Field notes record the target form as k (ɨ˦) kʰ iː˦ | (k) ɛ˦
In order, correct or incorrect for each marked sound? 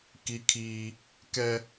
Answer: incorrect: i˦, correct

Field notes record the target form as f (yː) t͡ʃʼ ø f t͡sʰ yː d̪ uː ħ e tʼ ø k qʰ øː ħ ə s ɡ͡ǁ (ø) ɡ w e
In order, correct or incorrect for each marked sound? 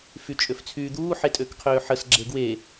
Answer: incorrect: y, incorrect: e

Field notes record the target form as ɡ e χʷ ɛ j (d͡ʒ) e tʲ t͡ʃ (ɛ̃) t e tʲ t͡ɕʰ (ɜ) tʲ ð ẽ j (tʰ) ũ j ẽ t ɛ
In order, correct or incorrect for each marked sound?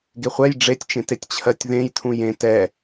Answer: incorrect: ɖ͡ʐ, incorrect: ẽ, correct, correct

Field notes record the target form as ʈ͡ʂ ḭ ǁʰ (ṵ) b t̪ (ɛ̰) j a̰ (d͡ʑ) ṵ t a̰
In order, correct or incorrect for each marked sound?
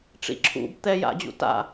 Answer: correct, incorrect: ɛ, correct

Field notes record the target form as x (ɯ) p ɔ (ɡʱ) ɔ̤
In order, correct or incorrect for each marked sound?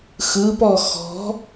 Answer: correct, incorrect: x

